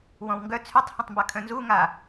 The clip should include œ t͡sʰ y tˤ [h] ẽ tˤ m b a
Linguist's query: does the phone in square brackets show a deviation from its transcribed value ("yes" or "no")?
no